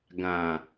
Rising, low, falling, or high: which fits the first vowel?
low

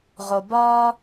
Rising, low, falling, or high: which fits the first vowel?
low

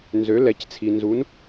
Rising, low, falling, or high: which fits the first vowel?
rising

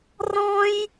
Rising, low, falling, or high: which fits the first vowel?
high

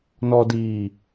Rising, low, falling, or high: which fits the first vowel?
low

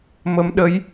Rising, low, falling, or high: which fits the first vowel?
rising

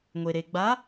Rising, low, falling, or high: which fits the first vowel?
low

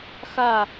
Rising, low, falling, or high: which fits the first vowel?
falling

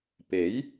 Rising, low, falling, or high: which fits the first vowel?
rising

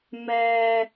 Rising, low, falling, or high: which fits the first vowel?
high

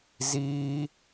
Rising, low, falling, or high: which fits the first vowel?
high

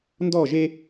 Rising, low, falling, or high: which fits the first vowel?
falling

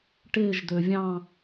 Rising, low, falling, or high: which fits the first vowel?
falling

